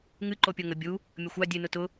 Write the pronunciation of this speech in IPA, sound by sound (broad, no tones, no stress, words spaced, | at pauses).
ŋɨ ǃopʲoŋə bʲu | mʲəxʷa dʲɨ nʊtʊ